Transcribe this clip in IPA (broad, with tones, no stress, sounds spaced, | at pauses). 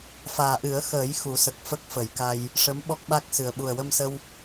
f aː˨˩ ʔ ɨ˨˩˦ ə̯ x əː˨˩˦ j x u˨˩˦ s ə˨˩ k̚ f ə˦˥ k̚ f ə˨˩˦ j k a˧ j | ʂ ə˧˥ m ɓ ɔ˦˥ k̚ ɓ a˦˥ k̚ s ɨ˨˩ ə̯ ɓ u˨˩ ə̯ w ə˧ m s ə˧ w